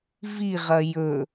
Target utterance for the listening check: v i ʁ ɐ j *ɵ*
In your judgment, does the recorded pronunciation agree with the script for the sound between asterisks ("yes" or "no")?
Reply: yes